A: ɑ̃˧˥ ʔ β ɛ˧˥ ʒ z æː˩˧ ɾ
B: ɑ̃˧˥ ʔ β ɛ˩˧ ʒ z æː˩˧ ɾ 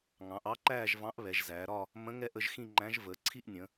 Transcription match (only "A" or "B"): B